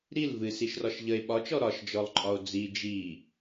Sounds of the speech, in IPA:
ɾ i l v ɨ s i ʃ r ɒ ʃ ʎ ə e̯ ɓ ɒ t͡ʃ ɔ ɾ ɒ ʃ d͡ʒ ɔ lˠ ǃʼ ɒ o̯ d͡z i d͡ʒ i

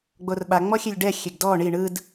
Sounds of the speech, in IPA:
ɡ͡b o r ɓ a ŋ͡m ɔ xʲ e lʲ ɖ ɛ xʲ e ɡ d ɔ ɳ i ɳ ɯ d

